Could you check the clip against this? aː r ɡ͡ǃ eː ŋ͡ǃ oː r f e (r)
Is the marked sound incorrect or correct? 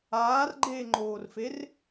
correct